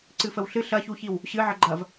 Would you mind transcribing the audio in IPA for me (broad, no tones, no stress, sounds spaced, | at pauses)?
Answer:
ǀ ɨ f ə w ɬ ɨ ɬ ɐ ç u ç i w | ɕ ɨ ʕ ə ɡ͡ǃ ɐ v